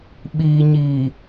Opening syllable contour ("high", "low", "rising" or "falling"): low